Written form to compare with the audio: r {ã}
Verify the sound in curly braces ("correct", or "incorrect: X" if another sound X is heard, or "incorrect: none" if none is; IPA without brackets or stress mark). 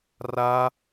incorrect: a